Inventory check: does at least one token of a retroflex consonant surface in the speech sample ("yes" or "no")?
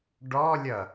yes